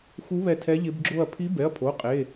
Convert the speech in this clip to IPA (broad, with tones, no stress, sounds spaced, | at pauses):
x u˧˥ β ɛ˧˩ tʰ ɛ˧˥ ʎ ɪ˧˥ b ɡ͡ǁ o˥˧ ɐ̯ pʰ i˧˥ b ɛ˩˧˩ ɐ̯ pʰ o˩˧˩ qʼ e˩˧˩